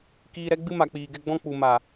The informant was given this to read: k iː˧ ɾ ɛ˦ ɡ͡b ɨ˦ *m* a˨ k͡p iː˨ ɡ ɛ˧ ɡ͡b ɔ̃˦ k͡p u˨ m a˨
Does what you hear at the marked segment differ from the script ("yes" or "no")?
no